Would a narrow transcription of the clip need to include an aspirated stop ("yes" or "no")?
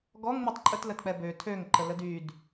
yes